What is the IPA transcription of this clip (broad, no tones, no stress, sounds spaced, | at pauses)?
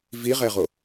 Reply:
v i ʁ ɛ ʁ o